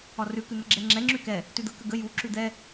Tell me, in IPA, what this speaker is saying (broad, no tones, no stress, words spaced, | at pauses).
ɒrʉ kʉn̪əɡ͡ǁɛŋ͡ǁɛ ŋ͡ǁʉkɛ | tʉd̪ə kəɡə ju ǁʉd̪ɛ